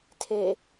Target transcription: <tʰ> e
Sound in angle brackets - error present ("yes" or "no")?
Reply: no